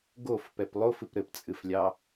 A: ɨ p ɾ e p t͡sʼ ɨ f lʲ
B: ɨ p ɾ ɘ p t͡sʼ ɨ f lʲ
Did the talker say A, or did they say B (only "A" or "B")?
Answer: B